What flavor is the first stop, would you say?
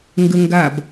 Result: plain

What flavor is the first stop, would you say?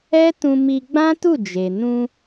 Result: plain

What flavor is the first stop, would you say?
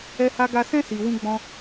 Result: plain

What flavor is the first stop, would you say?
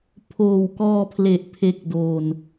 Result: aspirated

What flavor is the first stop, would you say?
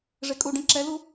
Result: ejective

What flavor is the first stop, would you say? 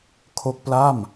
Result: aspirated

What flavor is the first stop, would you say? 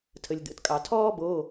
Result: aspirated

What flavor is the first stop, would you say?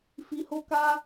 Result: plain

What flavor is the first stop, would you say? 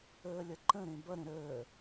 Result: click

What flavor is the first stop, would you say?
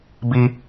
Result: plain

